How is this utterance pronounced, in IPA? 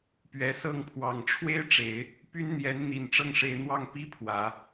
p ɥ ɛ˨˩ s ɤ˥˩ ŋ pʰ w ɑ˨˩ ŋ ʈ͡ʂʰ w e˥ ɪ̯ ʈ͡ʂ e˨˩˦ ɪ̯ | p y˥ n n̪ j ɛ˧˥ n n̪ i˨˩ n ʈ͡ʂ ɤ˥˩ ŋ ʂ e˧˥ ɪ̯ n̪ w ɑ˥˩ ŋ p i˥ pʰ w ä˨˩˦

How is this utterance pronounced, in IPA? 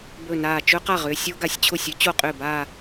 b ɵ˧˩ n aː˧˩ t͡ʃ ɵ˦˥ q a˥˩ ʁ ʏː˥˧ sʲ o˦˥ ɡ a˧˩ sʲ t͡ɕʰ ʊ˥˩ sʲ ʏ˦˥ t͡ɕ o˥˩ qʼ ʏː˥˩ b aː˥˧

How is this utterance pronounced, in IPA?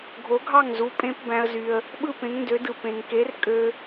ɡʱ o˩˥ ɡʱ ɑ˥˩ ŋ z u˩˥ pʼ ẽ˧ p b æ̃˧ ə̯ z y˩ ə̯ | ɓ ɯ˥˩ p ẽ˩˥ ŋ n d ø˩˥ d ɯ˩ p ẽ˩ ŋ k e˩˥ r kʼ ø˧

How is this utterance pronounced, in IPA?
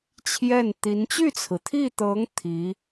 t͡ɕʰ j ɛ˥˩ n t̪ i˧˥ n t͡ɕ y˥˩ t͡sʰ ɹ̩˩ t̪ʰ i˥˩ t̪ ɤ˧˥ ŋ t̪ʰ i˧˥

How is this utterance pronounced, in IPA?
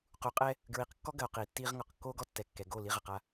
q u˨ qʼ ɛ˦ | ɡ ɹ i˨ q kː ɔ˦ ɡ ɐ˨ o̯ q iː˨ tː iː˦ ʁ ŋ ɔ˨ q kː oː˦ ɡ ɔ˦ tː ɛ˨ kː ɛ˨ ɡ o˦˨ l i˦ ʁ ɐ˨ q a˦

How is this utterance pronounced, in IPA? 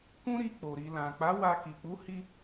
k ũ˦ ɾ i˧ k͡p o˨ ɾ i˨ l ã˨ k͡p a˨˦ w a˧ k i˨ k͡p u˨˦ h i˧

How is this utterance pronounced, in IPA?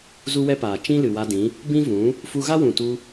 z u˦ w ɛ˦ p aː˨ t͡ʃ ĩ˦ l ɨ˨ w a˧ d ĩ˨˦ | b ĩ˦ v ũ˨˦ | f u˧ ɣ a˦ w ũ˨ t u˧

